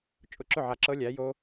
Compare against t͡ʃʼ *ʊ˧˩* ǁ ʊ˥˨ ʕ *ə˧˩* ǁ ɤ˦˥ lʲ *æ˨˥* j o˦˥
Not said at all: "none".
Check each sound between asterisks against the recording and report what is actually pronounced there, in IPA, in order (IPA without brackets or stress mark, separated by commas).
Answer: ʊ˧˩, a˧˩, æ˨˥